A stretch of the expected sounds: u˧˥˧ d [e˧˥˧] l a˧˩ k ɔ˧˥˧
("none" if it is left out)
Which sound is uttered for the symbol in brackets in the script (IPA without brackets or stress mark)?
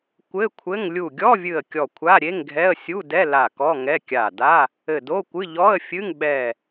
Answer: ɛ˧˥˧